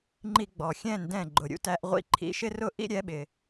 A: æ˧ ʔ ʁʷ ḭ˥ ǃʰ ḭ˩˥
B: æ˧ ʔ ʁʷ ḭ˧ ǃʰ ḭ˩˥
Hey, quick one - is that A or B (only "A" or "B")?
B